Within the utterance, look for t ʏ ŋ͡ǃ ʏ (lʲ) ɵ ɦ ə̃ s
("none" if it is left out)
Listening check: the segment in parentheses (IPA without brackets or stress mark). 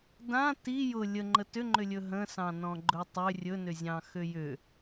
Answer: lʲ